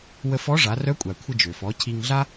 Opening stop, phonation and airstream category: ejective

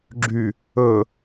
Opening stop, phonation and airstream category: click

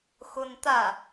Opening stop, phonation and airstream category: plain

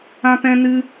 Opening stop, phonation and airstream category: plain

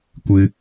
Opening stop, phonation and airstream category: plain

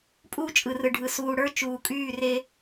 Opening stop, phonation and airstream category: ejective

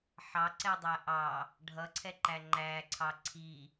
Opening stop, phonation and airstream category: click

